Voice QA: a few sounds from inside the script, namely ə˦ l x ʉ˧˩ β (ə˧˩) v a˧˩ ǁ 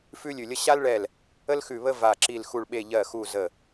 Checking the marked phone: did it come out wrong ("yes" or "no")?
yes